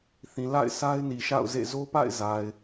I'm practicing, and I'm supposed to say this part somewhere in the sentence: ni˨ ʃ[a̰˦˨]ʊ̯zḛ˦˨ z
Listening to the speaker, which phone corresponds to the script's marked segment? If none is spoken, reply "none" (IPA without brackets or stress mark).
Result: a̰˦˨